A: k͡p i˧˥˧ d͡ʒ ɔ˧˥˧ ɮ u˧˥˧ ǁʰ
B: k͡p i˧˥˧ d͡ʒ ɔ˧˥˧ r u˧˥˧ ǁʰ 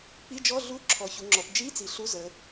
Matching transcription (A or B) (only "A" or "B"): A